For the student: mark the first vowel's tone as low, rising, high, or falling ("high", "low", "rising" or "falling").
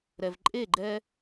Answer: low